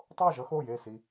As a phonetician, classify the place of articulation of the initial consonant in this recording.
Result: alveolar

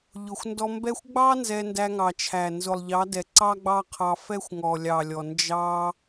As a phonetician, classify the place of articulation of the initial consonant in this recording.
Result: palatal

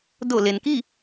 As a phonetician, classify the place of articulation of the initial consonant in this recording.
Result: alveolar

